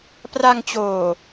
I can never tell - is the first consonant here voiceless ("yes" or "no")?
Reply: yes